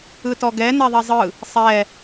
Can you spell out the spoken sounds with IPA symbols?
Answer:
ɯ t ɔ ɡ ɛ n ɛ ðˤ ɛ zˤ ɯ | sˤ ɛ

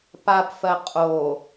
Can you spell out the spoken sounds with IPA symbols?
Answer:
p a p f ɜ qʼ o

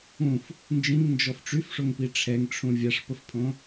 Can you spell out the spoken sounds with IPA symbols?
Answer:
ũ f | n d͡ʒ ĩ ŋ n d͡ʒ ɔ f ʈ͡ʂ y f ʂ o ŋ p i ʈ͡ʂʰ ɛ ŋ ʈ͡ʂʰ ũ vʲ a ʂ p ə f pʰ õ

